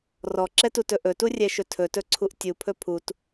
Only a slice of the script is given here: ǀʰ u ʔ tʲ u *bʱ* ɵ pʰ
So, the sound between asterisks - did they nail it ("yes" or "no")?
no